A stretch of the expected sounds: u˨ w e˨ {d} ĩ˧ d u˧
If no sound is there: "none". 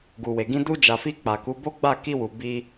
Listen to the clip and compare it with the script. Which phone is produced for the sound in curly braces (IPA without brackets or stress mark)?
ɡ